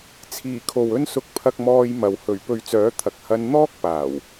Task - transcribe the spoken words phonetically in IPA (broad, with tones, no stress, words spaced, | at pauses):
t͡sʰiː˨˩ kʰo˨wɵ˧nsʊ˨˥k̚ pʰɐ˧k̚mɔː˧jmɐ˨w hɵ˨˩ɥ pɵ˨˧ɥt͡sœː˨˥t̪ʰɐ˨k̚ hɐ˧n n̪ɔː˥k̚paː˨˩w